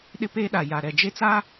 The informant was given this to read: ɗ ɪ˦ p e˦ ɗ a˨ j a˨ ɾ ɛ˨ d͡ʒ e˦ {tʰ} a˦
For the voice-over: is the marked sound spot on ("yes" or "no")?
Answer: no